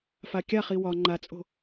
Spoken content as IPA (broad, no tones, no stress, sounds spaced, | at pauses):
f a kʲ a χ i w ɒ ŋ͡ǃ a t͡sʼ o̤